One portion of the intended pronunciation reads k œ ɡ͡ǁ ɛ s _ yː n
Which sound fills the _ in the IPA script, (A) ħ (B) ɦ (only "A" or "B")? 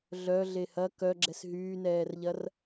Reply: B